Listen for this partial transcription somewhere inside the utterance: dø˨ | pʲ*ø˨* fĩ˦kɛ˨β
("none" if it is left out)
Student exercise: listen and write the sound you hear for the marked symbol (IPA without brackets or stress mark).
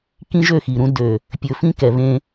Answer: ɵ˨